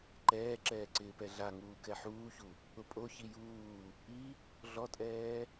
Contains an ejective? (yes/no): yes